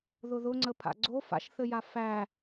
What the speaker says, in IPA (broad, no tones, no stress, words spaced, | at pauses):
ðʊðʊŋ͡ǀə pʰa̰ɡ͡ǀo fa̰ʃθɘja fæ